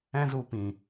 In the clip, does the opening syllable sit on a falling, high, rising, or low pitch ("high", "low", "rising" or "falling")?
high